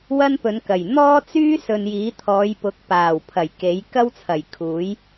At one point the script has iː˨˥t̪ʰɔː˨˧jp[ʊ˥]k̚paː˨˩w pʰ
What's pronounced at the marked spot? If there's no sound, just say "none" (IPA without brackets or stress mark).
ʊ˨˥